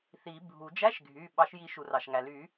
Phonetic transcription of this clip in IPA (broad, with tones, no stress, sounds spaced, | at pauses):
θ i˨˩˦ bʱ u˨˩˦ d͡ʒ æ˧˥˧ ʃ ɡʱ y˩˧˩ ɓ ɑ˨˩˦ ʃ j i˨˩˦ ʃ u˩ r ɑ˩ ʃ ŋ æ˩ l y˨˩˦